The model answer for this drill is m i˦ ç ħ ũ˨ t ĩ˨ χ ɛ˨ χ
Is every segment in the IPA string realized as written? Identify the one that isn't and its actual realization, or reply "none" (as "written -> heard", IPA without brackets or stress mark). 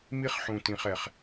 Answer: ç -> χ